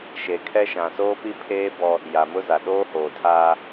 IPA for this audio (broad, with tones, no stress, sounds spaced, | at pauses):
ʃ e˨ kʰ ɛ˦ ʃ ã˨ s oː˦ p i˦ pʰ eː˦ b ɔ˦ | j a˨ m ʊ˦ z a˨ ɗ oː˦ h oː˨ tʰ aː˦